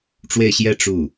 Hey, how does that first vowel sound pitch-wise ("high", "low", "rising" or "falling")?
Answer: falling